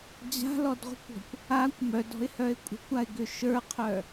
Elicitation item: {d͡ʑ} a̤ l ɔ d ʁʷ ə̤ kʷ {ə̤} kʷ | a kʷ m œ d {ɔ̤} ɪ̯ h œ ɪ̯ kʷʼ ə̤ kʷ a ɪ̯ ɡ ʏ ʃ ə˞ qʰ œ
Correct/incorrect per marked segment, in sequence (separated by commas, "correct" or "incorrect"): correct, incorrect, correct